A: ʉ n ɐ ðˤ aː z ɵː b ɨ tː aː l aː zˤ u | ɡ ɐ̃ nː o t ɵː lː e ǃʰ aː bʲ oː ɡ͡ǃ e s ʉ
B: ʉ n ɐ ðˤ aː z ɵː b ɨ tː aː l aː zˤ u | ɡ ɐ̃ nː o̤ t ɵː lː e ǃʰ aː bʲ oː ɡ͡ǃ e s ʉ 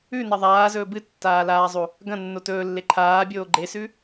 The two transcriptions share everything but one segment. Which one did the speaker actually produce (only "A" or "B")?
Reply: A